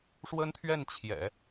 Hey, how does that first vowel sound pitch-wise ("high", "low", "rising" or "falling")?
high